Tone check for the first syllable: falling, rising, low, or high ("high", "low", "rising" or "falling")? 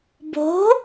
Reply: rising